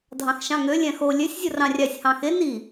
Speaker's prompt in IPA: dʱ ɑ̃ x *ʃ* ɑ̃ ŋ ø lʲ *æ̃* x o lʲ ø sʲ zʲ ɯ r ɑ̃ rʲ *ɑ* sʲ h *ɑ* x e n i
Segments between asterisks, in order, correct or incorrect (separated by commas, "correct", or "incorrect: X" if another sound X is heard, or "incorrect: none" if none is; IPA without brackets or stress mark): correct, correct, correct, incorrect: ɑ̃